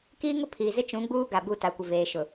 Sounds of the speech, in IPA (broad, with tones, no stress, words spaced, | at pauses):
kiː˦ŋʊ˦pʰiː˨ zɪ˦t͡ʃũ˨˦ɡ͡buː˦ɡa˨ bu˦˨ ta˨kʷɪ˨ veː˨ʃʊ˨